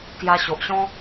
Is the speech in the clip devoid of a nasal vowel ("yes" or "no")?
no